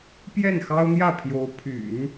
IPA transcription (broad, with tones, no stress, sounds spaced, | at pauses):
p j ɛ˥˩ n x ɑ˥ ʊ̯ n̪ j ä˥˩ pʰ j o˧˥ ʊ̯ pʰ y̰˨˩˦ n